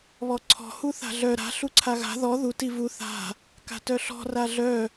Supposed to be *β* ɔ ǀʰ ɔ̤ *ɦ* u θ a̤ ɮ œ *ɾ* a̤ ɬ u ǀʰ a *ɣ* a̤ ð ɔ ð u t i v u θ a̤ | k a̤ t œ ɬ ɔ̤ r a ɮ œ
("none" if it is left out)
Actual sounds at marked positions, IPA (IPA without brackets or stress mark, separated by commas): β, h, ɾ, ɣ